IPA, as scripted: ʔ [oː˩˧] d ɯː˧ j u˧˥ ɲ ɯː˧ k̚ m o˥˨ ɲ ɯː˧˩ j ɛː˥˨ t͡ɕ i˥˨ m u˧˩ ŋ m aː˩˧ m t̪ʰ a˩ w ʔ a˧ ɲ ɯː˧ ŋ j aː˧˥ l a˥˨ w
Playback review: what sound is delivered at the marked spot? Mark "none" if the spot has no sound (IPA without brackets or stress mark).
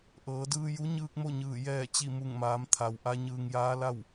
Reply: ɤː˩˧